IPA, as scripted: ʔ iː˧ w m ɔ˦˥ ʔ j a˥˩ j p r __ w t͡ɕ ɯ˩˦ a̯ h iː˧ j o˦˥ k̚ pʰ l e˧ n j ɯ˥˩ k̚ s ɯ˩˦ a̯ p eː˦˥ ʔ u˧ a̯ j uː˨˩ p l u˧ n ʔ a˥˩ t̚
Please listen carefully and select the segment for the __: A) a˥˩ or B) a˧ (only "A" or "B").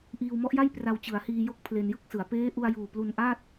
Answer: B